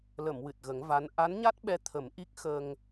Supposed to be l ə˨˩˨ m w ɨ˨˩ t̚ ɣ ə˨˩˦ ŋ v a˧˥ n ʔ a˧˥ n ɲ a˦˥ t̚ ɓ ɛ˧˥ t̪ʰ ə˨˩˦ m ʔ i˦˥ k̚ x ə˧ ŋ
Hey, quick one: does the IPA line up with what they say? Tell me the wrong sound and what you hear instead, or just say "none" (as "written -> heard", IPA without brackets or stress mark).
none